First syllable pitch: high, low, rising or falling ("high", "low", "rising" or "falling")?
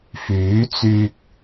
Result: rising